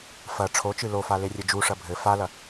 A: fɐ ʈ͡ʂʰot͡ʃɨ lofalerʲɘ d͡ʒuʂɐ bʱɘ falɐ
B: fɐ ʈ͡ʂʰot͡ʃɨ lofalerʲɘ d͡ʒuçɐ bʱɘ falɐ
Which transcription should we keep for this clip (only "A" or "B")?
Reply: A